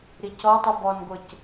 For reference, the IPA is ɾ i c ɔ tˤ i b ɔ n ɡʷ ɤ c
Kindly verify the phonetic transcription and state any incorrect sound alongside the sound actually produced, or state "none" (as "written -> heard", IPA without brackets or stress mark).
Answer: none